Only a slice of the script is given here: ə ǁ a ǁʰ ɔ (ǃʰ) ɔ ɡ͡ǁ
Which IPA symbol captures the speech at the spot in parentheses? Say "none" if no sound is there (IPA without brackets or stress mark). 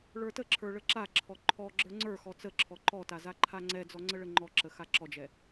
ǃʰ